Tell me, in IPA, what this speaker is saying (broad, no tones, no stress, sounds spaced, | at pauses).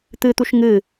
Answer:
t̪ ɨ t̪ u ʃ ŋ ɨ